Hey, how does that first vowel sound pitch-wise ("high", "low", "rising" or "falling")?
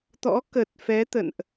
rising